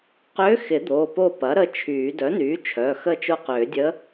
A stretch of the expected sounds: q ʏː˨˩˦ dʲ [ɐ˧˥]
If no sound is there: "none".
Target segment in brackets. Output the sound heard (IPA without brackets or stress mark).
ə˧˥